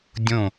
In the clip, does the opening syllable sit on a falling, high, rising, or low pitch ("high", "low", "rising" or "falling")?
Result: falling